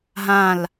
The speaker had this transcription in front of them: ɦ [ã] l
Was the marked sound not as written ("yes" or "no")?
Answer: no